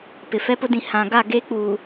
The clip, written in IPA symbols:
p ɪ˨ f ɛ˦ p ʊ˦ d ĩ˨ h ã˨ ɡ a˦˨ ɡ e˦ k͡p uː˨

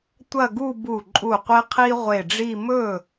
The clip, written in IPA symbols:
tʷ ɐ˥˧ ɡ u˥˧ b u˧˩ ǃʼ u˧˩ qʷ e˥ qʰ i˥ ʁʷ e˧˩ ɖ͡ʐ i˥˧ m ɵ˥˩

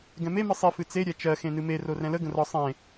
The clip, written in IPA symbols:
ɡ ɛ̃ m e m ɨ sˤ i f ɨ t͡s e ɾʲ ɛ t͡ʃ ɜ x ẽ n ɨ m e r o r ɛ̃ l ə ɡ ə̃ r ɒ sˤ ẽ

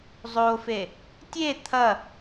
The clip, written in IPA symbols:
zˤ o f e | tʲ e t̪ʰ ɐ

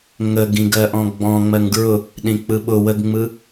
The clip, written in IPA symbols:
ŋ ə ɡ ĩ ɡ ɜ ʔ ɔ̃ ɡ͡b ɔ̃ ŋ͡m ɜ ŋ ɡ ɹ ʊ | ɗ ĩ k͡p ɯ ɓ ʊ w ə ɡ ŋ͡m ɯ

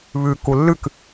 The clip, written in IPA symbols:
β ʉ k u lː ʉ k

